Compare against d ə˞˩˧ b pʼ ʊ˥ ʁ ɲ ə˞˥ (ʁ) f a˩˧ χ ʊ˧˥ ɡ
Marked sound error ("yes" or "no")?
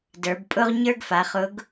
yes